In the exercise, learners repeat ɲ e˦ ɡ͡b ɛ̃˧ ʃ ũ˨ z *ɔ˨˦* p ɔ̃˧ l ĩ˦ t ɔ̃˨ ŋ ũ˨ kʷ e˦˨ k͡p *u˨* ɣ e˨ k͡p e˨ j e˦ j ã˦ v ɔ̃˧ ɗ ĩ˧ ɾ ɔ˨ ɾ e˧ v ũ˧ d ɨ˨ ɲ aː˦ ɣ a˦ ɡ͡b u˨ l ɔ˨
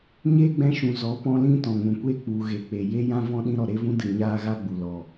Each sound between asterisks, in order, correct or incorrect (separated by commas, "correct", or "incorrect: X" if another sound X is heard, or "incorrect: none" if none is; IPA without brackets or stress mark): correct, correct